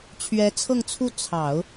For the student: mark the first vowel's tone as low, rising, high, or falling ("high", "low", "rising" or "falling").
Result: rising